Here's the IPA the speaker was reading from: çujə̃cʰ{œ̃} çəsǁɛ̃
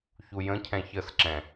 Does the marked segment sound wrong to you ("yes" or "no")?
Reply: yes